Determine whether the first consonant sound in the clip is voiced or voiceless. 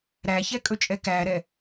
voiced